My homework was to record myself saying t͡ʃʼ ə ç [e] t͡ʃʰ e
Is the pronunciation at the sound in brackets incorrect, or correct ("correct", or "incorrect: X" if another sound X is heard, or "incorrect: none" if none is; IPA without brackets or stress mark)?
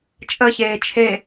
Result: incorrect: eː